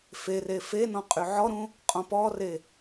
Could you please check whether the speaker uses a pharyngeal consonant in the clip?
yes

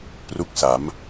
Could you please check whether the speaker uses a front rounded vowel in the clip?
no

